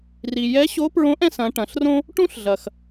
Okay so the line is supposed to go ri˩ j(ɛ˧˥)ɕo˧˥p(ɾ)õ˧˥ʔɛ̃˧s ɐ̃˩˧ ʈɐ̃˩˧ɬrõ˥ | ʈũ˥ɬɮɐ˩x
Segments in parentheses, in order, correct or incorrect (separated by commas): correct, incorrect